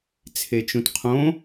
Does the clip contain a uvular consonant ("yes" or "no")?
yes